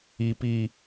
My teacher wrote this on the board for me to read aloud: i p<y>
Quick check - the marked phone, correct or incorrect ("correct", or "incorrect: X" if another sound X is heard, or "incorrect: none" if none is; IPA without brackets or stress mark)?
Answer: incorrect: i